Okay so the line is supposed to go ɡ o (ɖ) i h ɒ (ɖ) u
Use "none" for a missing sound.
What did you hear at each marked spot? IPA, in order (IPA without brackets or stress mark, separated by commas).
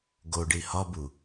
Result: ɖ, b